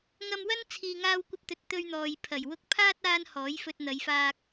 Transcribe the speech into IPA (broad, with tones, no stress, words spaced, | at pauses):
ŋɐ˧mwɐ˥n t͡sʰiː˧ŋaː˥wkʷɐ˥p̚t̪ɵ˧t̚ t̪ɵ˧ɥn̪ɔː˨jpʰɐ˨˩j wʊ˧k̚pʰaː˥t̚ aː˥nhɔː˨˥jfɵ˧t̚ n̪ɐ˨˧jfaː˧k̚